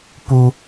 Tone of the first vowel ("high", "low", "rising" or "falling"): high